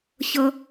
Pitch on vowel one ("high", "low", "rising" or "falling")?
high